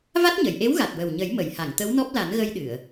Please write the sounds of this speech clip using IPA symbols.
v a˦˥ t̚ ɲ ə˨˩˨ j ʔ e˧˥ w ɣ a˨˩ t̚ w ə˨˩ w ɲ ə˨˩˦ j m ə˨˩˨ j h a˨˩˨ ŋ t̪ ə˧˥ w n ɔ˦˥ p̚ l a˨˩˦ n ɣ ə˧ j ɗ ɨ˨˩˨ ə̯

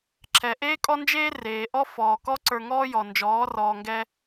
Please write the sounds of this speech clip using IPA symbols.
ǁʰ ɛ˨ ʔ eː˦ kʼ ɔ˦ n d͡ʒ eː˦ r eː˨ ʔ ɔ˦ f ɔː˨ k ɔ˦ ǀ ə˞˧ ŋ ɔː˦ j ɔ˨ n d͡ʒ ɔː˨˦ r ɔː˨ ŋ ɡ ɛː˧

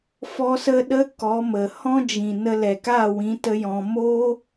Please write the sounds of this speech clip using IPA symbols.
f ɔ˦ s ə˦ ɗ ə˦ k ɔ˨˦ m ə˨ h ɔ̃˦ d͡ʒ ĩ˨ n ə˧ l ɛ˨ k aː˦˨ w ĩ˨˦ t ə˦ j ɔ̃˧ m oː˦

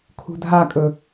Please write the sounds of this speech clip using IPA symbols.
kʰ ṳ dʱ a kʼ ɵ

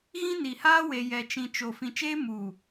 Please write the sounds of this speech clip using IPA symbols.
ɣ ĩ˦ n i˨ h aː˦ w e˨ j ɛ˨ t͡ʃ ĩ˨ t͡ʃ o˨ f ĩ˨ t͡ʃ eː˦ m uː˨

